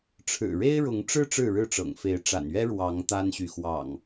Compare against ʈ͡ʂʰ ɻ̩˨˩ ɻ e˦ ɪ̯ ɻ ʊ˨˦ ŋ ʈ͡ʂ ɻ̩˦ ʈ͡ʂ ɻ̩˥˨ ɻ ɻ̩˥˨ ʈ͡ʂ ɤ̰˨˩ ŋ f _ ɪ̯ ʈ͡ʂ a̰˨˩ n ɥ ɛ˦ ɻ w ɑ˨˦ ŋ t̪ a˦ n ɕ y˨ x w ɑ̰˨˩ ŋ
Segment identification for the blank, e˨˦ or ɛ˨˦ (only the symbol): e˨˦